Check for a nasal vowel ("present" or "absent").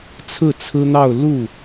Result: absent